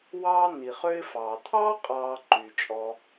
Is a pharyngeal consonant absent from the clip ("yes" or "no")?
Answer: yes